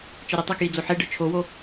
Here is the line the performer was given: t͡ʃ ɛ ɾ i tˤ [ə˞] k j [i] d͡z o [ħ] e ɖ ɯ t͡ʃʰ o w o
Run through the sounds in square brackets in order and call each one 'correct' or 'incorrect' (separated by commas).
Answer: incorrect, correct, correct